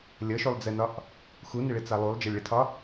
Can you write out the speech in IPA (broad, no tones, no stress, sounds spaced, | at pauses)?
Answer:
lʲ ʌ ʃ u lˠ d͡z ɛ n ɒ ʔ | x u n ɪ ɭ ɪ t͡s a lˠ u lˠ d͡ʒ ʌ lʲ ɭ ɪ tʰ ɒ